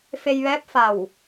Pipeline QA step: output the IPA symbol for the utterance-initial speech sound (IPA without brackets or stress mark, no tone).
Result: f